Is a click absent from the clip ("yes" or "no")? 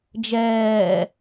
yes